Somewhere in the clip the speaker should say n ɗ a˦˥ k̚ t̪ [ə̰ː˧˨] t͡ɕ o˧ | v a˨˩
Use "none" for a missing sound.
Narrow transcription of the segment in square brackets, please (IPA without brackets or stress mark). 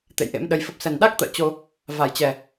ə̰ː˧˨